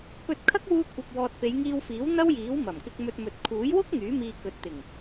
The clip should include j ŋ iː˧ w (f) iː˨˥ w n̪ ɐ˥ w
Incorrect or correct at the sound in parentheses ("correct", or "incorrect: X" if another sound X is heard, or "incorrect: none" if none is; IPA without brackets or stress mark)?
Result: correct